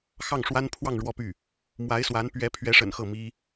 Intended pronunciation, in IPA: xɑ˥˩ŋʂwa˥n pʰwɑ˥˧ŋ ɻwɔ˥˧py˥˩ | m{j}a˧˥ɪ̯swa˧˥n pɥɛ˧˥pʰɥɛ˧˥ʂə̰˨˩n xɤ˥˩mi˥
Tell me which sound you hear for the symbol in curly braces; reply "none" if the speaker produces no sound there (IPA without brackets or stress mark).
w